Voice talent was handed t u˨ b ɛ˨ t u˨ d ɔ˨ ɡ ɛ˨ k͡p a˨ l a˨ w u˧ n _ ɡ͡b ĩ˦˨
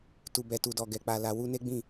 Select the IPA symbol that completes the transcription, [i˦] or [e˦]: e˦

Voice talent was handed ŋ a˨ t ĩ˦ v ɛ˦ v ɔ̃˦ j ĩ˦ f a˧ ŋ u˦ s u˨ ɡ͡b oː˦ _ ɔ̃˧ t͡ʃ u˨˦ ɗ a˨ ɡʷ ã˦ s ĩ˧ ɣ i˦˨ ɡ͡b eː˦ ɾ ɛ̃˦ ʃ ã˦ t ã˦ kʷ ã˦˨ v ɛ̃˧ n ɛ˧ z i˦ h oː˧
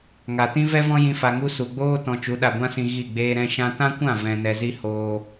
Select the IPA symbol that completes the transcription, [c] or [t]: t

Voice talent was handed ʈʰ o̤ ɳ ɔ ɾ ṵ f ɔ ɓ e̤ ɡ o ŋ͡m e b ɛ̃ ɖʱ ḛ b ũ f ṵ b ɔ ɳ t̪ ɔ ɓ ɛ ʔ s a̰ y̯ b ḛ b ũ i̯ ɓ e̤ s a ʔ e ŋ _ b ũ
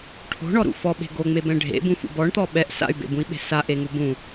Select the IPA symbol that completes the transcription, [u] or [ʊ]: u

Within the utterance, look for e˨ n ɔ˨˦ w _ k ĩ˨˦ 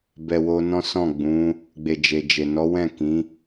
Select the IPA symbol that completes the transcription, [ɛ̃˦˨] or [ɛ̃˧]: ɛ̃˦˨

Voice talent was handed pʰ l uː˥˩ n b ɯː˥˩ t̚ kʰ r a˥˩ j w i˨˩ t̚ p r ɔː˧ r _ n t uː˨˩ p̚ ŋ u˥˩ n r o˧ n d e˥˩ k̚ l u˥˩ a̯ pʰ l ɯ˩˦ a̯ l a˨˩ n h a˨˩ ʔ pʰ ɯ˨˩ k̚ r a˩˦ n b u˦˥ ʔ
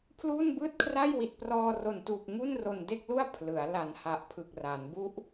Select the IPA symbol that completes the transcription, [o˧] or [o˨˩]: o˨˩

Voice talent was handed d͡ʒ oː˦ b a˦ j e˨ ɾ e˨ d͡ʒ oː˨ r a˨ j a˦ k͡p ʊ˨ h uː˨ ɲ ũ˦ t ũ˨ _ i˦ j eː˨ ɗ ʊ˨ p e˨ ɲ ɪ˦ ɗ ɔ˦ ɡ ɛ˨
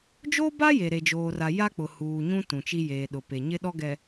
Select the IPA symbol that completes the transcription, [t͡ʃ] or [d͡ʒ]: t͡ʃ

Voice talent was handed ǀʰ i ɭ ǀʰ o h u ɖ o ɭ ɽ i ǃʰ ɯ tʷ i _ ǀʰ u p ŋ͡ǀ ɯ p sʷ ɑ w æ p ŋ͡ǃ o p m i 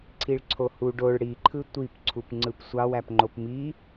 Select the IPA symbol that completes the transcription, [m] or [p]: p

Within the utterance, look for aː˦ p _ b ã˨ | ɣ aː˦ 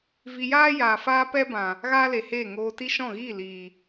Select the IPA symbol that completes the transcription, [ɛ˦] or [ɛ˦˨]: ɛ˦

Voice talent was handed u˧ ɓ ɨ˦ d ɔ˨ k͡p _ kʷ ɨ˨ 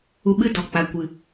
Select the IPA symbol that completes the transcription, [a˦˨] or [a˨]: a˨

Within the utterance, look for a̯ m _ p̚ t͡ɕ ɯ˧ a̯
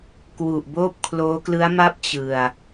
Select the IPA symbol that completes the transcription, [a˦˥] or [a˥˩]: a˥˩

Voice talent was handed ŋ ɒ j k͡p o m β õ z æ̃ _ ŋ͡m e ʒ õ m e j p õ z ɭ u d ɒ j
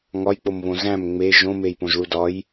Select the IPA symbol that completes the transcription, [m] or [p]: m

